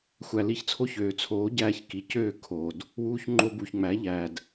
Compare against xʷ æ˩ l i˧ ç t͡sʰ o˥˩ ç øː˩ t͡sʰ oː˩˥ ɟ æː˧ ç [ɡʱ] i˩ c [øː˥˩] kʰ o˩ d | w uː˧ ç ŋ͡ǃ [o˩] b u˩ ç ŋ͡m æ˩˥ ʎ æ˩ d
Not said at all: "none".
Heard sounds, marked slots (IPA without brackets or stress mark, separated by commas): k, øː˥˩, o˧